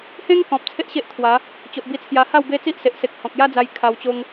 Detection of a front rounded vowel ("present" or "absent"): absent